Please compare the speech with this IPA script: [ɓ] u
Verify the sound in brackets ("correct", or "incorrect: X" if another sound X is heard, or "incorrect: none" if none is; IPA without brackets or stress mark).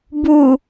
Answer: incorrect: b